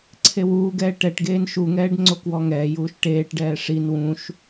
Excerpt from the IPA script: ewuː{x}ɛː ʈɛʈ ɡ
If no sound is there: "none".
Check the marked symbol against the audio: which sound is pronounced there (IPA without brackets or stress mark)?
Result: ɡ